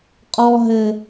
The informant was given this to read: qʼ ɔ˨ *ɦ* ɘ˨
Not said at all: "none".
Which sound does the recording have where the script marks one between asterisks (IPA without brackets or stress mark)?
ɦ